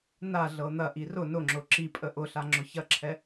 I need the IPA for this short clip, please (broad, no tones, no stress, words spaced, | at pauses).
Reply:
na ɮɤn̪ɐʔi rʊ nʊŋ͡ǁʊ ǁipʼə ʔʊɬa ŋ͡ǁʊçɐǁʰɛ